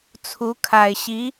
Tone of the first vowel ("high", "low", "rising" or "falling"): rising